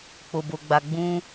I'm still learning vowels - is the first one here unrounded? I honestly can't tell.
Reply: no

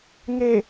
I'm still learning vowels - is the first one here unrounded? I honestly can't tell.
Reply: yes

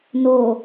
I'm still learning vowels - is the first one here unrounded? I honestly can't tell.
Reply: no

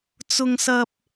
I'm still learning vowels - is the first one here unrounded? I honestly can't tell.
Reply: no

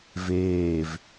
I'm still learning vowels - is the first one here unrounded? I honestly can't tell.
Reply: yes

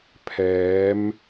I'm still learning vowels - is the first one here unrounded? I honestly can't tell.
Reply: yes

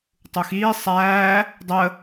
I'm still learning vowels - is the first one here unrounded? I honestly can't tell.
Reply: no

